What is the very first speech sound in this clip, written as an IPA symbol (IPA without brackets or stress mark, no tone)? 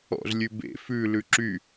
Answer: ɔ̰